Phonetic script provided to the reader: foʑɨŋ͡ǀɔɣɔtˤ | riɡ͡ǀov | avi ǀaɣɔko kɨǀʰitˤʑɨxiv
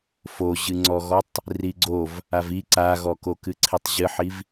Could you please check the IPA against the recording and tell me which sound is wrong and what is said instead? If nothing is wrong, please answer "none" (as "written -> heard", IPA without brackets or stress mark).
x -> ħ